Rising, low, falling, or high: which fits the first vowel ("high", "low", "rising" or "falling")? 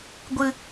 high